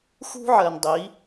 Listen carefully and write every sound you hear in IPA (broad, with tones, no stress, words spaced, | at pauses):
xṳ˦ ʕɜ˨ndˤi˨˦